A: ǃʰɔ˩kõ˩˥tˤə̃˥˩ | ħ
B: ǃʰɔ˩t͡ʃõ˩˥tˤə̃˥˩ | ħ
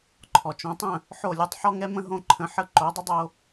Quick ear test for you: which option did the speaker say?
B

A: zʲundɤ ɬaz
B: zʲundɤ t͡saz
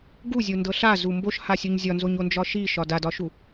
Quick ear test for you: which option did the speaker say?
A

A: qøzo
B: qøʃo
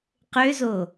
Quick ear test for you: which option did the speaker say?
A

